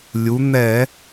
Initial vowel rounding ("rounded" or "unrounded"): rounded